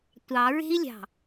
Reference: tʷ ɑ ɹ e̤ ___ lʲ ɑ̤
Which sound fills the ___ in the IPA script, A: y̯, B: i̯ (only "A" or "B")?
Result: B